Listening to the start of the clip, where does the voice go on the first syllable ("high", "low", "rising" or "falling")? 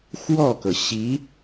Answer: falling